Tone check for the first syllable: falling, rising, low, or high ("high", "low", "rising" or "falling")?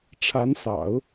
rising